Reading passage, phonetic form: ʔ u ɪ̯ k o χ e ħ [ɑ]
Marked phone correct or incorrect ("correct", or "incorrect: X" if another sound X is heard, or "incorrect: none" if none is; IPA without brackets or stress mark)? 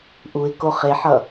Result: incorrect: ʌ